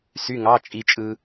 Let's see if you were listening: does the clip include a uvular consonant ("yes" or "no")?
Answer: no